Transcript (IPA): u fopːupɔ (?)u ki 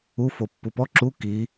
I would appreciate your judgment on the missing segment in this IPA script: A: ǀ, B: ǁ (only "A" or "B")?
B